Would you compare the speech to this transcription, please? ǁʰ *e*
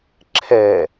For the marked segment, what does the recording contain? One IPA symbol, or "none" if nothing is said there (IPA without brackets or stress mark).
ɛ